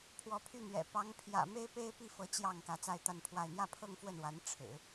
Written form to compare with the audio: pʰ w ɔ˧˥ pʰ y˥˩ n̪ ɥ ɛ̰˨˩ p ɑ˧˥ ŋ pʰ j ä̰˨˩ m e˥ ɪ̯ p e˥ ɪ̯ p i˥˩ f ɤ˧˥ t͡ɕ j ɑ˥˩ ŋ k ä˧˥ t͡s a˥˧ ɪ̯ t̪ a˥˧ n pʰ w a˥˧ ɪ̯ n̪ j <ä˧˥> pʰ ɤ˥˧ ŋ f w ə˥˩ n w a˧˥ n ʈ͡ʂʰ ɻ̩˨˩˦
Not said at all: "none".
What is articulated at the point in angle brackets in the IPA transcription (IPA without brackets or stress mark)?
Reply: ä˥˧